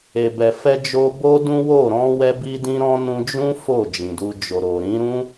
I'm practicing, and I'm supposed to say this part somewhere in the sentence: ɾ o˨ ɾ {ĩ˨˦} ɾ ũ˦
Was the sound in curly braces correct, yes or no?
yes